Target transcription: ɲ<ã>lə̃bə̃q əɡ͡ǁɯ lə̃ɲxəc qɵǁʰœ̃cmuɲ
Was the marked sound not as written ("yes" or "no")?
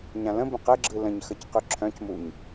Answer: no